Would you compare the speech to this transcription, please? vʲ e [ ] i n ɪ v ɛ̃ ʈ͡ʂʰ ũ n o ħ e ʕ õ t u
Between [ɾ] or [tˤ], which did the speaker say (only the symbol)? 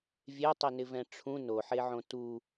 tˤ